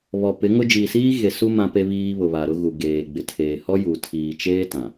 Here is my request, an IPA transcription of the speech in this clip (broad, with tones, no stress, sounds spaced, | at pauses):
β ɔ˨ p ɪ˨˦ ŋ ʊ˦ d͡ʒ iː˨ s iː˦ ɣ e˨ s u˦ m ã˦ p e˦ β iː˦ β ʊ˨ β a˨ ɾ ʊ˦ ɣ u˨ ɡ eː˨ ɡ͡b ɪ˨ tʰ eː˨ h ɔ˦ j u˨ tʰ iː˨ t͡ʃ eː˦ t ã˨